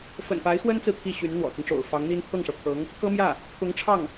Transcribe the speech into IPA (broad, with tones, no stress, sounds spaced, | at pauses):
f ə̰˨˩ n p a˧˥ ɪ̯ x w ə˥ n t͡s ɹ̩˨ t̪ʰ i˥˩ ɕ y˧˥ n n̪ w ɔ̰˨˩ t͡s ə˦ n ʈ͡ʂ o̰˨˩ ʊ̯ f ɑ˧˥ ŋ n̪ i˥ n t̪ʰ ɤ˥˩ ŋ ʂ ɤ˩ pʰ ɤ˧˥ ŋ | k ɤ˥ m j ä˥˩ | k ʊ˧˥ ŋ ʈ͡ʂʰ ɑ˥˩ ŋ